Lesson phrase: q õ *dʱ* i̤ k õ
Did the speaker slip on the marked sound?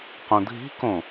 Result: no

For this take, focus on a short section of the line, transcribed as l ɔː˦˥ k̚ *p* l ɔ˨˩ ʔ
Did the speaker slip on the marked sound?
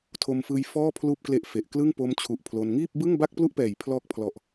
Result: yes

